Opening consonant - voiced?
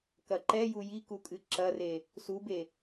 no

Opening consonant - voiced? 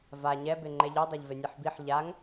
yes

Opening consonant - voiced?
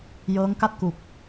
yes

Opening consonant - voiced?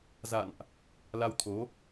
yes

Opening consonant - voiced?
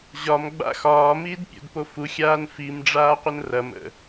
yes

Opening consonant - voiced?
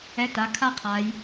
no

